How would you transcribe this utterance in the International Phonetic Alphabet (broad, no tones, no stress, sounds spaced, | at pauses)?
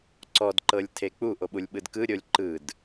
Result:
ǀ ɔ d ǃ ɤ lʲ tʰ e k͡p u ʔ o ɓ u lʲ ɓ ɯ d k ɯ ɾʲ o lʲ ǃ ɯ d